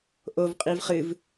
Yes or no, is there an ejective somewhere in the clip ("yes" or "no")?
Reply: yes